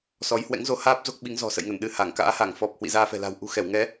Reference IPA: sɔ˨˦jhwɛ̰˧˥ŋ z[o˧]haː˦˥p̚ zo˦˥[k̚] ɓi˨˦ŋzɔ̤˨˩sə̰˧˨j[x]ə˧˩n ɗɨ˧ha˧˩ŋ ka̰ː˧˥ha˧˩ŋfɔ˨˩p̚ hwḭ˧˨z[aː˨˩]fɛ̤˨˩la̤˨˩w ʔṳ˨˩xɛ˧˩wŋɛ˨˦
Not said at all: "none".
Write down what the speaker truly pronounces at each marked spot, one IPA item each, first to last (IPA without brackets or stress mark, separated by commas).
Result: o˧, k̚, ŋ, aː˧